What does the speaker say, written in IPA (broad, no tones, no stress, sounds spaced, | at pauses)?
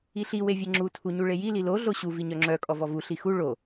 i ɬ i w e vʲ e ŋ͡ǁ u tʰ u ɲ u ɭ e j i l i l o ɮ o ɕ u v i ɲ œ ŋ͡ǁ œ kʼ ɔ v ɔ v u ɬ i x u ɭ o